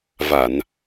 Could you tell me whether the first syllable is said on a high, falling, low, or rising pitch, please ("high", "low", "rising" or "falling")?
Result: low